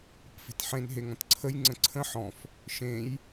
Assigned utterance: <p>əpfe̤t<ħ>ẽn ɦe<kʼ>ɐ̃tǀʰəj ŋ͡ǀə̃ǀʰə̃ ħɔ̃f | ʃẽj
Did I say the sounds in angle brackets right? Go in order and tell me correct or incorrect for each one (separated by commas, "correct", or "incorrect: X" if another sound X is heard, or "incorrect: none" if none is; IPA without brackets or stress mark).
correct, correct, incorrect: ŋ